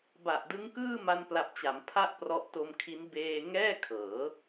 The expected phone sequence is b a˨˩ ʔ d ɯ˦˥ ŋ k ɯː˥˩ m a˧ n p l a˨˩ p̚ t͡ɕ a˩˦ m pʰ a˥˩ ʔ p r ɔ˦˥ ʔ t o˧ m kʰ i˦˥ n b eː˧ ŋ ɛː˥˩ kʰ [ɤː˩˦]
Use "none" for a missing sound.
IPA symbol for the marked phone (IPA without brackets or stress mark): ɤː˩˦